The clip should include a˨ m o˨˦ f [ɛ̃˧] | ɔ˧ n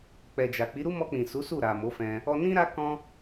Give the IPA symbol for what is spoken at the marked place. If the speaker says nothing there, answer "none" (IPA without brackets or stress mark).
ɛ̃˧